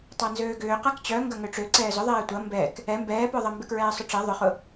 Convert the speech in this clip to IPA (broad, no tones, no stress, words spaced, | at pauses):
tˤanzøːɡʏː qakt͡ɕœ ŋɡɐŋøʈ͡ʂø ǀɛːzʊðˤɛː tʷɐ mbɛk | ɛ mbɛːpœðˤɐ mbɪkɹɛːsˤʊʈ͡ʂɛ ðˤʊχʊ